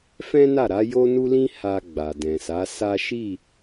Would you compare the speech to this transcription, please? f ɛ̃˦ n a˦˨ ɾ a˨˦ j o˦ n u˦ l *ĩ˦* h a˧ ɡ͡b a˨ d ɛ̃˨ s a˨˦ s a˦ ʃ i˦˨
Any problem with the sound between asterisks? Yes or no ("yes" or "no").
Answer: no